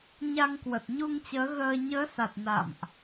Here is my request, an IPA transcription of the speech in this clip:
ɲ a˧ ŋ k w ə˨˩ t̚ ɲ u˧ ŋ t͡ɕ əː˨˦ ɣ əː˧ ɲ əː˨˦ s a˨˩ t̚ n a̰˧˨ m ʔ

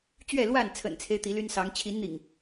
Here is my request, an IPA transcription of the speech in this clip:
t͡ɕ ɥ ɛ˥˨ l w a˥˨ n t͡sʰ ə̰˨˩ n t͡sʰ e˦ ɪ̯ t̪ i˨˦ l y˦ n s ɑ˨˦ ŋ t͡ɕʰ i˨˦ n n̪ ḭ˨˩ ŋ

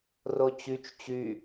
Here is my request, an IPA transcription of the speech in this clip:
r o t͡ɕ y t͡ʃ t͡ɕ y

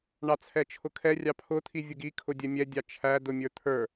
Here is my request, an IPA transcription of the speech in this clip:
ɳ ɑ t͡sʰ ɛ t͡ʃʰ ʊ kʰ ɛ rʲ ɑ pʰ ʊ t̪ʰ i vʲ ʊ ɡ i kʰ ʊ dʲ ɛ mʲ ɛ dʲ ɑ t͡ʃʰ æ d ʊ mʲ ə˞ t̪ʰ ə˞

